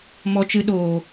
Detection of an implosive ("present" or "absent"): present